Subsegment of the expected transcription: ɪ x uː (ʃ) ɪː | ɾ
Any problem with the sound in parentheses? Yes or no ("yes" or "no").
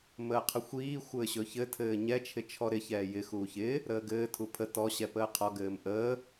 yes